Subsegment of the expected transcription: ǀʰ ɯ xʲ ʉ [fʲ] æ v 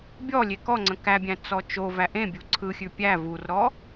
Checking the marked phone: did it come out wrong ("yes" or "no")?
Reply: yes